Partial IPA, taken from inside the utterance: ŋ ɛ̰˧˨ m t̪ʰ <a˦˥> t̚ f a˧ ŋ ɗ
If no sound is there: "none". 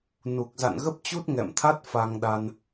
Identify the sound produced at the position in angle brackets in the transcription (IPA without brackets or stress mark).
a˦˥